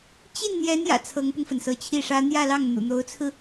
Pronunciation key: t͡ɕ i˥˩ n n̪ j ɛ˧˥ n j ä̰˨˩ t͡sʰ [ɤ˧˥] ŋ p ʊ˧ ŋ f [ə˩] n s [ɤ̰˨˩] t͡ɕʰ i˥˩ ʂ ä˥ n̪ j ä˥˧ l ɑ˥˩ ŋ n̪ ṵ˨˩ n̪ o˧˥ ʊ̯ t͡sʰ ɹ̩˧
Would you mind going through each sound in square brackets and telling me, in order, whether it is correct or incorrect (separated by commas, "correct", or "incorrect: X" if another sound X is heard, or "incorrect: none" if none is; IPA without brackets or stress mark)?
correct, correct, incorrect: ɤ˧˥